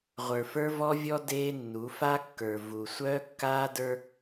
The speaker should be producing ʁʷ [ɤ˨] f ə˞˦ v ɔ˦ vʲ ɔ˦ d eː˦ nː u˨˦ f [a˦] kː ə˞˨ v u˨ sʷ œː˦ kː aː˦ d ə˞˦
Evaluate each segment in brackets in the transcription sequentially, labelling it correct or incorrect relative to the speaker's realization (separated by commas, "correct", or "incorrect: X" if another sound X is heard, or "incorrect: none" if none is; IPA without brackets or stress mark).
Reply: incorrect: ə˞˨, correct